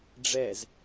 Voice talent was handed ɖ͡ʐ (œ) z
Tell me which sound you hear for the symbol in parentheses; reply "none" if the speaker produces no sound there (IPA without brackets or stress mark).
ɛ